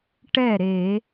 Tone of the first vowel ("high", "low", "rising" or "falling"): falling